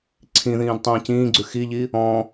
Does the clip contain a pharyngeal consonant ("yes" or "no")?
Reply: no